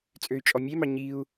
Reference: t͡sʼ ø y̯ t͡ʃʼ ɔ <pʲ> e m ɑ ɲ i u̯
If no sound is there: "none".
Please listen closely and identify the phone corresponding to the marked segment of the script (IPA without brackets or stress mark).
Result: mʲ